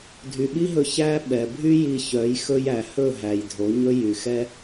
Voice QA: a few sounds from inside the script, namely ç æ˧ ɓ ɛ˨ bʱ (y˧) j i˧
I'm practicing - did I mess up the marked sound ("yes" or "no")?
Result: yes